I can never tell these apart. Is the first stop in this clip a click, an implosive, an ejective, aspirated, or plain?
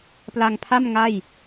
plain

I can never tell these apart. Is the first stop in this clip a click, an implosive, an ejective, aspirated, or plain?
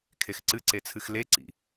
aspirated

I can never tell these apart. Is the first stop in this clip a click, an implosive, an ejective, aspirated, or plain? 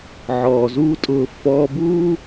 ejective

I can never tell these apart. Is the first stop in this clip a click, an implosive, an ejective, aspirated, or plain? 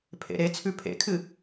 aspirated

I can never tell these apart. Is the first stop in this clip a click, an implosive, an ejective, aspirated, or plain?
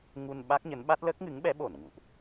implosive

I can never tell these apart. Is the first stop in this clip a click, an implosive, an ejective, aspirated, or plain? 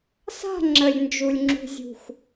click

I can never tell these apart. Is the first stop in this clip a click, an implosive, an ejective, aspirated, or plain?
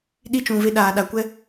implosive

